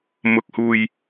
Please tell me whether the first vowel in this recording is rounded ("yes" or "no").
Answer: yes